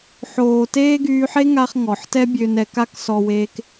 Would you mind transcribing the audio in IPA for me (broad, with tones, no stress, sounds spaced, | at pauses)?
ħ oː˨ t eː˦ ɡ yː˧ ħ e˦ ŋ a˧ χ ŋ ɔ˨ ħ t ɛ˦ bʲ ø˨ n ɛ˨ k a˧ k s ɔ˨ w eː˧ k